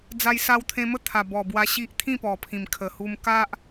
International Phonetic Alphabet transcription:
d͡za˧jsa˧wt̪ʰẽ˧mə˥˧ t̪ʰa˨˩bɔ˨˩ bwa˧ ɕi˦ʔ t̪ʰĩ˥˧pɔ˨˩pʰĩ˨˩m kʰə˨˩hu˧m ka˦ʔ

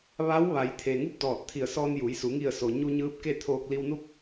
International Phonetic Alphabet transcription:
ʋa˧˥w ʋa˩˧jt̪ʰe˩ ŋu˥˨p̚dɔː˧˩t̚t̪ʰi˧˩ə̯sɔː˧n juː˩˧jsu˩˧ ŋi˧˩ə̯so˩ ɲu˧ɲɯː˧˥p̚ ke˥˨t̪ʰoː˧k̚ li˧wnu˥˨p̚

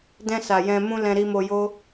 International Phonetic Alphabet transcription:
dɛ̃˧sa˨ jɛ̃˧mũ˦ lɛ̃˧ɾi˧mo˧jo˦

